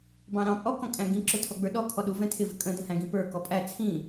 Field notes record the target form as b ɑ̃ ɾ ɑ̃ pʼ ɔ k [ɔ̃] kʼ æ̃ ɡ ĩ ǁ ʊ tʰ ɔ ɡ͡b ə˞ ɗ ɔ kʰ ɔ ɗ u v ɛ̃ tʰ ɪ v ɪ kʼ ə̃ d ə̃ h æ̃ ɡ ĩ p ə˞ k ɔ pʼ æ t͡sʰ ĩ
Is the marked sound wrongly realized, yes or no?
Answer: no